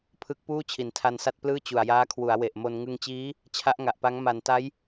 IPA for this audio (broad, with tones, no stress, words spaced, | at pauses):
pʰɯ˦˥k̚puː˥˩ t͡ɕʰi˩˦ntʰa˧nsa˥˩t̚ plɯː˥˩t͡ɕu˨˩a̯jaː˦˥kʰwu˩˦a̯ we˨˩ʔmo˧n ŋɯ˧ŋt͡ɕiː˦˥ | t͡ɕʰa˦˥ʔŋa˨˩ʔpa˦˥ŋ ma˩˦nta˦˥j